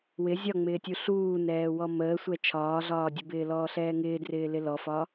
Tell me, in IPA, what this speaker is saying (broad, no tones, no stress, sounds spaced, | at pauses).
w ɪ zʲ ɒ ŋ͡m ɪː tʲ u ɬ uː n ɛː w ɔ m əː sʷ ɛ t͡ʃʰ ɒː ɮ ɒː dʲ ə b ɪː l ɔː ɬ ɛː ŋ ɪː d r ɪː l ɪ l ɔ f ɒ